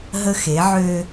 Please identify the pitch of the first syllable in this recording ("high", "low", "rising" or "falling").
high